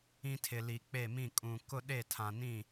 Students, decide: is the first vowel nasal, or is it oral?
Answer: nasal